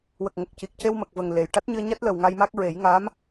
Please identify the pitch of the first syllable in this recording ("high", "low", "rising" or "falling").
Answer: low